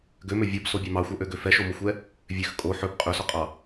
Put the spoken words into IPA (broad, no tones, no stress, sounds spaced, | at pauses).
ɡ ø m ø vʲ ɔ b s o bʲ ɑ m ɑ xʷ œ ʔ ø ɡ ø f ɛ ʃ o m o xʷ ɛ | vʲ ø x kʼ o ħ ɵ b qʼ ɵ s ɔ qʼ ɑ